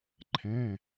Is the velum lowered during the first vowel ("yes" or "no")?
yes